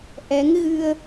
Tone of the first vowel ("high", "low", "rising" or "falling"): rising